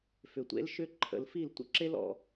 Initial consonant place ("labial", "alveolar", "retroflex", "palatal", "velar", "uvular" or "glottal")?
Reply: labial